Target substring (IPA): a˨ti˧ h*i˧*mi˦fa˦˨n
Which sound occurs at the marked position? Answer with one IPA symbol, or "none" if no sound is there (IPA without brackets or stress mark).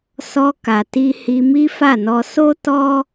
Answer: i˧